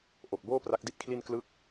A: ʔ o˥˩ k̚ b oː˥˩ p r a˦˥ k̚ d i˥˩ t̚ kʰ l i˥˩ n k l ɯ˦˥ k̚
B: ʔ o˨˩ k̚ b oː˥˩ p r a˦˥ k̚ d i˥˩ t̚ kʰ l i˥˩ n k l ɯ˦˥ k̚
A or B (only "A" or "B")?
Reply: B